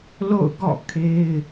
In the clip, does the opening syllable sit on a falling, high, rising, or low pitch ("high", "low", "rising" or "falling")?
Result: falling